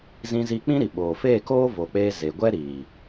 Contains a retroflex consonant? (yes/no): no